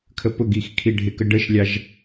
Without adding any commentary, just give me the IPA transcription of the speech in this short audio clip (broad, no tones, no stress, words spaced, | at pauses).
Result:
kʰəpʊɡix kʰiɖʱɪkə ɖəʃlʲɑʒ